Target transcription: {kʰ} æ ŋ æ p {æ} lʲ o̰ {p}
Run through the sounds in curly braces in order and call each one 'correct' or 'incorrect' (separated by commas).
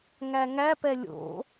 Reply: incorrect, incorrect, incorrect